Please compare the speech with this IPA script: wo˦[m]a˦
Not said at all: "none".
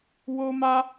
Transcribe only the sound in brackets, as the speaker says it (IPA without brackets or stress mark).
m